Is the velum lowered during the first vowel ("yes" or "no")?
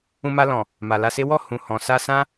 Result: yes